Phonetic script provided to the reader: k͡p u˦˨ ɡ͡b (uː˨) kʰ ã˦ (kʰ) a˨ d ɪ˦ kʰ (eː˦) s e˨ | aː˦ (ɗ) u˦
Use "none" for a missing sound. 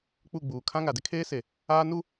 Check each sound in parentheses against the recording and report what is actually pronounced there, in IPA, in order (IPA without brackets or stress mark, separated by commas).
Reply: uː˨, ŋ, eː˦, n